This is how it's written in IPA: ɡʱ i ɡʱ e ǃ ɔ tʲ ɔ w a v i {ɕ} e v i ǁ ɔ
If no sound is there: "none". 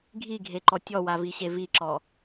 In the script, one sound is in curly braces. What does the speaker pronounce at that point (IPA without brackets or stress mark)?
ɕ